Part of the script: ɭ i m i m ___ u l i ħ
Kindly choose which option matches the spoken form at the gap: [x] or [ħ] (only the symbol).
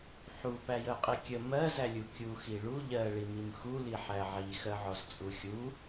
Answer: x